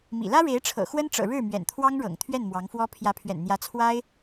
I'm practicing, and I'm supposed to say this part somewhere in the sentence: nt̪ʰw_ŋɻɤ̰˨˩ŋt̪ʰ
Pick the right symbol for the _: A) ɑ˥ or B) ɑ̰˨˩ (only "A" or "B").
A